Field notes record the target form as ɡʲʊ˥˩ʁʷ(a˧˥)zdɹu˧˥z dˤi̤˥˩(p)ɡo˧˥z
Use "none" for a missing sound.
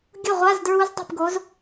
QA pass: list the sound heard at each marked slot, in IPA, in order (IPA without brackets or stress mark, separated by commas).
a˧˥˧, p